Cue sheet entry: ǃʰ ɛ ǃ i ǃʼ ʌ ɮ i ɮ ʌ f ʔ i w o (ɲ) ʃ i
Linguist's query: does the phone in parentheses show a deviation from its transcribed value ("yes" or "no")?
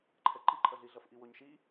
no